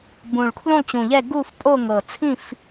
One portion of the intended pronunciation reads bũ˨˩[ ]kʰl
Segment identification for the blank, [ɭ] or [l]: ɭ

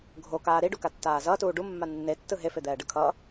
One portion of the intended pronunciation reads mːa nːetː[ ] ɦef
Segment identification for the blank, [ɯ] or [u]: ɯ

